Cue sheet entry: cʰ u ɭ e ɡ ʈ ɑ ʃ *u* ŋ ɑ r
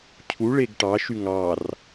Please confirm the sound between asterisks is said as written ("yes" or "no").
no